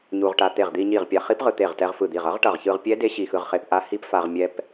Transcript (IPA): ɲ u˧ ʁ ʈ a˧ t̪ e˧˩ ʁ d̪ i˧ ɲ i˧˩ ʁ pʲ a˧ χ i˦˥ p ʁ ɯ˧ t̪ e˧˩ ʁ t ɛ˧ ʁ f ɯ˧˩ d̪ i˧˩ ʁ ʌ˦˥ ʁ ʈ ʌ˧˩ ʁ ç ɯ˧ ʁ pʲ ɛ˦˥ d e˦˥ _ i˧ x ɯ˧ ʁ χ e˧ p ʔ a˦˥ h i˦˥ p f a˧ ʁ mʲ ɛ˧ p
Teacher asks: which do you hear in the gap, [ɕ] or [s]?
ɕ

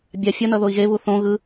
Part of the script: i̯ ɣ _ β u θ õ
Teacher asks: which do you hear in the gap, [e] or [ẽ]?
e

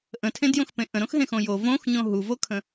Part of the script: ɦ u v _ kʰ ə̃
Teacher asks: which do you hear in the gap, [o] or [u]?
o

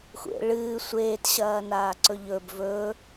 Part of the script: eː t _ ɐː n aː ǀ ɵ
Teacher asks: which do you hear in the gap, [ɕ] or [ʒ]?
ɕ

